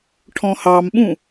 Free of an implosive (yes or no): no